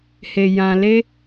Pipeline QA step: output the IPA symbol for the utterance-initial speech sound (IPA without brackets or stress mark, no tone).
h